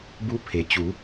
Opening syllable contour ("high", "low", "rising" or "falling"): rising